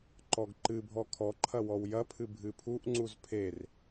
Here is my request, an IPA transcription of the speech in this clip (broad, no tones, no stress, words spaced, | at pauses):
ǃɔɡǃɨbʱɔ kʰɔǃʰɐ wɔwjɐpʰɨ bʱɨpʰuʔŋ͡ǀuz pʰer